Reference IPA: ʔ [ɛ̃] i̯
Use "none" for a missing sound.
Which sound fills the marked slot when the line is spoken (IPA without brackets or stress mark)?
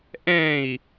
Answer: ɛ̃